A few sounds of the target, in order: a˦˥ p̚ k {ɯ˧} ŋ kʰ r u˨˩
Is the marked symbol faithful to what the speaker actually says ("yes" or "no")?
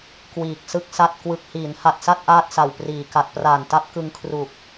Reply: yes